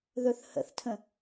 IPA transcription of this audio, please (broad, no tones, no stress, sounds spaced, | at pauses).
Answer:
ð ɵ θ h ə̰ θ tʰ ə̃